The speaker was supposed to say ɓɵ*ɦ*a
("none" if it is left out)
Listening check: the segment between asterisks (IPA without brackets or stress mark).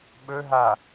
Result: ɦ